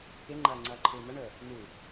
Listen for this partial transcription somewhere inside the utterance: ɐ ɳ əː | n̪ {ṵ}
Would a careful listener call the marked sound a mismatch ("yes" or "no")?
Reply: yes